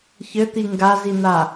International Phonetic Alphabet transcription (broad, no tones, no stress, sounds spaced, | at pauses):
ç ɘ t̪ i ŋ ɡ a z i n̪ a